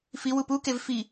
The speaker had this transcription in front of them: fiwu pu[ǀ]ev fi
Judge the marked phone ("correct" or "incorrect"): incorrect